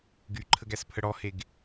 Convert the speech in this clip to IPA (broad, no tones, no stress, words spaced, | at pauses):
ɡyǃʰəɡæspʰə ɽɔheɡ